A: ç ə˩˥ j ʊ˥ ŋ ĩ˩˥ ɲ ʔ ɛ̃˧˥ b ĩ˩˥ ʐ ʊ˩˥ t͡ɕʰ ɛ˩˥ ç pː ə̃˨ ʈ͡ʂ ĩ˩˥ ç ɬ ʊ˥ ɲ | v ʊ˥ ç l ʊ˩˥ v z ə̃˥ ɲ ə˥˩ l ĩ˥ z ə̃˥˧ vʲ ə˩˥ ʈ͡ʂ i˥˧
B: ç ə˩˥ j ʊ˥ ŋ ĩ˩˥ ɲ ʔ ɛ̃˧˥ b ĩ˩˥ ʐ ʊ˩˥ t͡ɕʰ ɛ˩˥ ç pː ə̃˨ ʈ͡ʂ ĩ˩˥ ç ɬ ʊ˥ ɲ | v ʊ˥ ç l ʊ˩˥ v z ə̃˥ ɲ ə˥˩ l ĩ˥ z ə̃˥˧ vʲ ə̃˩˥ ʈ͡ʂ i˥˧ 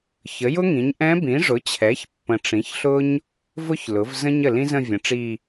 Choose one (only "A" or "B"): B